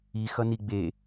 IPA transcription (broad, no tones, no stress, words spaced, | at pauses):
i xʌniɡ͡be